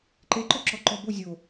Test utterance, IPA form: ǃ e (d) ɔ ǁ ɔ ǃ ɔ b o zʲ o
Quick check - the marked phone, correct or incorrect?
incorrect